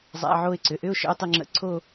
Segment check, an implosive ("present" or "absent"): absent